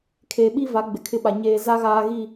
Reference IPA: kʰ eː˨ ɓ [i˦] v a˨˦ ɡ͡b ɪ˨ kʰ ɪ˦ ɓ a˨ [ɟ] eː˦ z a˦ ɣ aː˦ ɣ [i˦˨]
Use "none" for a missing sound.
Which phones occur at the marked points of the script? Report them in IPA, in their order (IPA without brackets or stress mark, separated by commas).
i˦, ɲ, i˦˨